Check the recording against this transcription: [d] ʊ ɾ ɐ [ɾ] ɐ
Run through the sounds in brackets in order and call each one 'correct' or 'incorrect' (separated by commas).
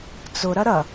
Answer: incorrect, correct